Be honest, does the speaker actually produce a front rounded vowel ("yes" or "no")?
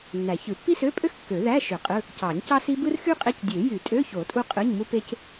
yes